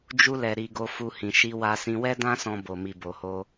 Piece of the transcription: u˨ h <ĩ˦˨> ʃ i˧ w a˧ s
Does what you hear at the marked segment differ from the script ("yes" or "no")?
yes